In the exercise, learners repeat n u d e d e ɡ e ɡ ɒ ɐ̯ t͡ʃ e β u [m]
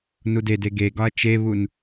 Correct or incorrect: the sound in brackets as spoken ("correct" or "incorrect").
incorrect